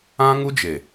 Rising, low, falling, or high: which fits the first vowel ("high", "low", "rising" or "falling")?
high